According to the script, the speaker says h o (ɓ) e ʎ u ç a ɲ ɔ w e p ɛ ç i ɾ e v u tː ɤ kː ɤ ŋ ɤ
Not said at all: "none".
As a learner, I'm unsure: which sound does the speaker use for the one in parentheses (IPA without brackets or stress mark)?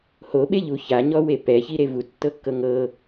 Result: ɓ